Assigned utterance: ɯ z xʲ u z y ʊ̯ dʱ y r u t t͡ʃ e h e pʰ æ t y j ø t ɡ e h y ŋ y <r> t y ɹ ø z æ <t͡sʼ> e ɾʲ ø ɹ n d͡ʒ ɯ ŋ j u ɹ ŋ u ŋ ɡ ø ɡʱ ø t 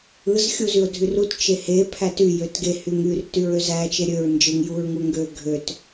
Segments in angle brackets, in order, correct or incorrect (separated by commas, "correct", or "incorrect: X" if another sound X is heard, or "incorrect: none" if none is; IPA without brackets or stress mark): correct, incorrect: t͡ʃ